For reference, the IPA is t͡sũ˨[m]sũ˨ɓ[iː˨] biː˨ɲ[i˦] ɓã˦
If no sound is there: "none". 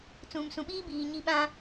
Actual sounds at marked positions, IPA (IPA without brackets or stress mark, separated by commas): m, iː˦, i˦